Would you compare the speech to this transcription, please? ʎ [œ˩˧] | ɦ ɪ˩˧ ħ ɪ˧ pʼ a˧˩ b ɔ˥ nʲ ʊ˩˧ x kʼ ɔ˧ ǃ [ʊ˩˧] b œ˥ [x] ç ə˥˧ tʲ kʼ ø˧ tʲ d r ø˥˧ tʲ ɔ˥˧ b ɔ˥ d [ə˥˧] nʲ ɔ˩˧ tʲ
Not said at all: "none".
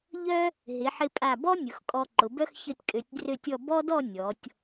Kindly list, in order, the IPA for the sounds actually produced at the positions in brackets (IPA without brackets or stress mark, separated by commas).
œ˥, ʊ˩˧, x, ɔ˥˧